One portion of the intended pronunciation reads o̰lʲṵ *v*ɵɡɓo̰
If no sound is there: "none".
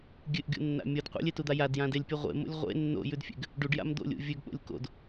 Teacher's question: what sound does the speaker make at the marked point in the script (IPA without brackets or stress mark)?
vʲ